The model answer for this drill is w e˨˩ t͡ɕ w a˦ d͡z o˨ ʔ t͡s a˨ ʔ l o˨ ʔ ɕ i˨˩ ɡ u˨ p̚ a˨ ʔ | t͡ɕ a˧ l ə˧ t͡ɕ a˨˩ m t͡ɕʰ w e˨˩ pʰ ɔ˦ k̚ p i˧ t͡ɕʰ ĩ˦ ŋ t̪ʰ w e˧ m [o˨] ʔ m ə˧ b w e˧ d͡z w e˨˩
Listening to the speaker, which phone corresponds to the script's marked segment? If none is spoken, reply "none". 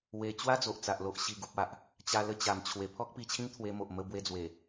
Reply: o˨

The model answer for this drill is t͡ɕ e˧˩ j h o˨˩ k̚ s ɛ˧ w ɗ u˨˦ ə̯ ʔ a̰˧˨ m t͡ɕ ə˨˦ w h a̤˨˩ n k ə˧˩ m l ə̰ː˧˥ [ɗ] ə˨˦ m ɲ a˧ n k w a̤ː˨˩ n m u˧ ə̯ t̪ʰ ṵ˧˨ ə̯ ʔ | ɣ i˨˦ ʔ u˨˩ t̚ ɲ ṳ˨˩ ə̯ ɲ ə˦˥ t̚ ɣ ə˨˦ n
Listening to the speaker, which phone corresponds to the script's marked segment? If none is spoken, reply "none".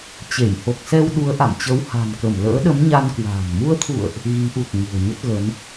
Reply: ɗ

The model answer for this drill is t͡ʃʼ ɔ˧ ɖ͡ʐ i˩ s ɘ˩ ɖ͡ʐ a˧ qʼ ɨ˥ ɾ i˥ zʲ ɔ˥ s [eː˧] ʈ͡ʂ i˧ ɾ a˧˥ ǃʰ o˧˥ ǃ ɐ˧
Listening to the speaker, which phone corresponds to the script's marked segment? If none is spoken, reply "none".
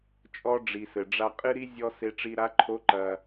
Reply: e˧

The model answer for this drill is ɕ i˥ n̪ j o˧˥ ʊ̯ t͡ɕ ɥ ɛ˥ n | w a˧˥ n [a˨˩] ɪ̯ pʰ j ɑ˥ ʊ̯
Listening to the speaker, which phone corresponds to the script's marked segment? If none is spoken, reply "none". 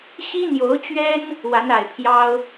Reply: a˨˩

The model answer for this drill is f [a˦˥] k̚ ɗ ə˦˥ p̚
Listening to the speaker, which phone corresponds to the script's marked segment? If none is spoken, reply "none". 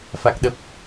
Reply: a˦˥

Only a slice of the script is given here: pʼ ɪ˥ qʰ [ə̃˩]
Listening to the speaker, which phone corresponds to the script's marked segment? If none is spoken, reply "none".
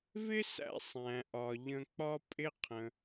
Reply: ə̃˩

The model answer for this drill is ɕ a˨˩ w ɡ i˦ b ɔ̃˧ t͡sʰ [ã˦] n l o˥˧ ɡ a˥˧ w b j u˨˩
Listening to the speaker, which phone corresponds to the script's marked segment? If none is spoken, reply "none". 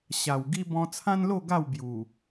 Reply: ã˦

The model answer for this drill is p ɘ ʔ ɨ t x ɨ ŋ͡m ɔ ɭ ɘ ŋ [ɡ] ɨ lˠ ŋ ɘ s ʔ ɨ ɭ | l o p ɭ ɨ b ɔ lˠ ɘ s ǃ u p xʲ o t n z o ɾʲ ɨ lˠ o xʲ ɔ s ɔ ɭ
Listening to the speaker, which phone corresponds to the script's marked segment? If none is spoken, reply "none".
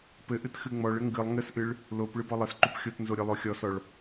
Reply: ɡ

